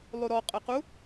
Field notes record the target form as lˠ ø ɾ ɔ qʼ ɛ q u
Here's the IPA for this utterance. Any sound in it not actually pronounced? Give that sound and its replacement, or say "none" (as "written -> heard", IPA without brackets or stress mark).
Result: ø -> u